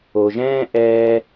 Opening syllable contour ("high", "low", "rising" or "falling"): low